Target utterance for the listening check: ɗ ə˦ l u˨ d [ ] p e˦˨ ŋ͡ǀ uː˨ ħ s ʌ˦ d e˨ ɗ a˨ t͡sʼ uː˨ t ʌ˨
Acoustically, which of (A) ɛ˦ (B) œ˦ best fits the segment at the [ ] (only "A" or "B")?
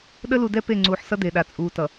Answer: A